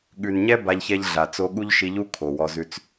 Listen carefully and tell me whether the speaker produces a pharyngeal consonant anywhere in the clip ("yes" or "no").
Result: no